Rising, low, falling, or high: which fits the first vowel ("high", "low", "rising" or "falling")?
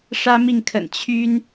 high